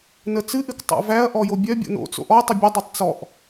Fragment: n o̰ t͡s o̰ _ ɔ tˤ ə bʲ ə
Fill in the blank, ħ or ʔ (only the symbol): ʔ